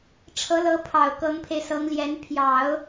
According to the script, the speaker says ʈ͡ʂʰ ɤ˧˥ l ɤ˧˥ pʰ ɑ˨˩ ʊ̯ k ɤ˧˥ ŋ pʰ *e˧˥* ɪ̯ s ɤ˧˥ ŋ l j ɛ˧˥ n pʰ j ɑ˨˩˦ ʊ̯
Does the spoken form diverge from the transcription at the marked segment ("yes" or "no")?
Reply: yes